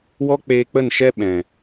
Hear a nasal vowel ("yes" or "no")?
yes